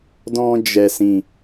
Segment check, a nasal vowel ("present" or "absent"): present